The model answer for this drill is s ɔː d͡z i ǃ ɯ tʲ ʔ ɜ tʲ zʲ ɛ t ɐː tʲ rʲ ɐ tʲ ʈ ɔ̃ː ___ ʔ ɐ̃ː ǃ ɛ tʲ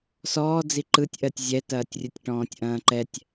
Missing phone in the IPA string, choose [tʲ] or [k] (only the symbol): tʲ